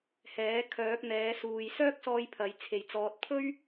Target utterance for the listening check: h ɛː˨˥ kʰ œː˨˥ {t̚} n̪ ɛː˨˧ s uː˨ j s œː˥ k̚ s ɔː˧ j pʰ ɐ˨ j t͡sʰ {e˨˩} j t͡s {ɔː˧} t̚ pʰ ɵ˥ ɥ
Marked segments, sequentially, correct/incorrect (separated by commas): incorrect, correct, incorrect